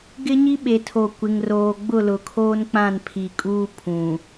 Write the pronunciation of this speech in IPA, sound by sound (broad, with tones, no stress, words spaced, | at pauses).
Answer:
ɡɪ˦ɲi˦ɓe˨tʰo˨ kʷɪ˨ŋroː˨ ɡ͡bʊ˦˨lʊ˨kʰoː˦nk͡pã˦˨n pʰi˨kʼuː˦ pʰũ˨